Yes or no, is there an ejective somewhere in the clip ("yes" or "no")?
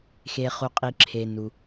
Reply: yes